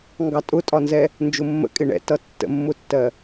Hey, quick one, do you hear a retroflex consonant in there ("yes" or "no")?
yes